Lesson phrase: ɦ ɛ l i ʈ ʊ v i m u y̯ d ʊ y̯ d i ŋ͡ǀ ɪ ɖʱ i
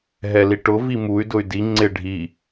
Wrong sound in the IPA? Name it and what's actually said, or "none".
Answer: none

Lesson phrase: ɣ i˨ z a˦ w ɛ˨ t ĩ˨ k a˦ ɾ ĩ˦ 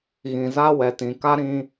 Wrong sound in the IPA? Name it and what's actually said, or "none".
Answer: i˨ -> ĩ˨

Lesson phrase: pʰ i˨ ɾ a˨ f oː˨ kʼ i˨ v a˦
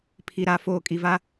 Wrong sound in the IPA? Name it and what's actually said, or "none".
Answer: none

